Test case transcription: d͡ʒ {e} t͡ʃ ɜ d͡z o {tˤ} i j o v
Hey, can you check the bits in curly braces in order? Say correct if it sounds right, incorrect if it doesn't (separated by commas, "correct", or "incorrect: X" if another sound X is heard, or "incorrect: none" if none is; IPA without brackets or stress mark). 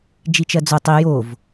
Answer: incorrect: i, correct